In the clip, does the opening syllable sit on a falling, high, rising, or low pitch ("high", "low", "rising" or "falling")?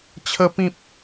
high